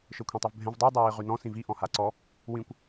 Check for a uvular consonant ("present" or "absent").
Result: present